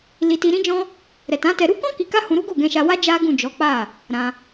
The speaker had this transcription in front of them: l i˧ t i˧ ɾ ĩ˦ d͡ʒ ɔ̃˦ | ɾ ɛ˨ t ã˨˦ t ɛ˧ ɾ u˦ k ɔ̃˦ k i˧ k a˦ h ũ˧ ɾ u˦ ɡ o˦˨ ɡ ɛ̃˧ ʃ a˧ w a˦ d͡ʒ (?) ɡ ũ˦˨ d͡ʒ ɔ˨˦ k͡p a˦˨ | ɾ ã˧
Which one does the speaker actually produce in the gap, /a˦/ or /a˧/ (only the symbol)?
a˦